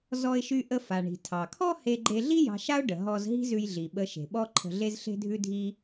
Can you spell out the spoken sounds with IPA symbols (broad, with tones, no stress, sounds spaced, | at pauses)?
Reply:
z ɔ˧ ɪ̯ ʃ y˧ ʔ ə˧ f a˩ ɳ i̤˩ tʰ ɑ˩ kʰ ɔ˥ h e˧ ɡ͡ǃ e˧ ɮ i˥ j ɑ̤˧ ʃ a˥ ʊ̯ ɖ ə˩ ɦ ɔ˧ z ɦ i̤˥ z ʉ˧ j ɮ i˩ ɓ ə˧ ʃ e̤˩ ɓ ɔ˥ ǃʰ ə̤˧ ɮ e˥ z ɬ e̤˥ dʱ ʉ˥ dʱ i˥